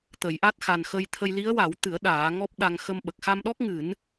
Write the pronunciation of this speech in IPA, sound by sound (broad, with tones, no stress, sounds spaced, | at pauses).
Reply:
t̪ ə˨˩˦ j ʔ a˦˥ t̚ x a˨˩ n x ə˧ j t̪ʰ ə˧ j l i˧˥ ə̯ w a˨˩˦ w t̪ ɨ˨˩˦ ə̯ ɗ aː˨˩˦ ŋ ɔ˦˥ p̚ ɗ a˧ ŋ x ə˧ m ɓ ə˨˩ k̚ x a˧ m ɗ ɔ˦˥ k̚ ŋ ɨ˨˩˦ n